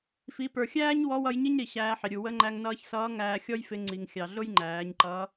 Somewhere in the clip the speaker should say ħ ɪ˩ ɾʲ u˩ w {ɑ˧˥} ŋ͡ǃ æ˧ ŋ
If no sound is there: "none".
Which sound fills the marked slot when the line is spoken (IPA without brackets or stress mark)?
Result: ə˧˥